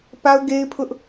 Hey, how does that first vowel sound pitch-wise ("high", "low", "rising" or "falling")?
high